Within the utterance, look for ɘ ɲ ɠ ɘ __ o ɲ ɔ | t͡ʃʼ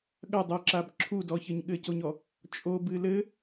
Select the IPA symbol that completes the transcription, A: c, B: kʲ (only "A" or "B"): A